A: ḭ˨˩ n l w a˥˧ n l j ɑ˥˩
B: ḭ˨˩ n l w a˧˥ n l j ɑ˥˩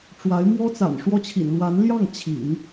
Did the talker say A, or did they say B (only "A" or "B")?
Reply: B